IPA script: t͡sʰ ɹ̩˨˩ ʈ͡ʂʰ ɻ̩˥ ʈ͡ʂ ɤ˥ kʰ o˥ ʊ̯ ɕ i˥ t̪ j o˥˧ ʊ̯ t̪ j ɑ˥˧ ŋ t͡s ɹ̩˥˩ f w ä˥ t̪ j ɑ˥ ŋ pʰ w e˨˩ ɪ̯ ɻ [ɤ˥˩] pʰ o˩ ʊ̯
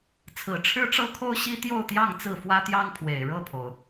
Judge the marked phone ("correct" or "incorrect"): correct